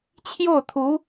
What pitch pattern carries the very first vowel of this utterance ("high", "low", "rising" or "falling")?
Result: falling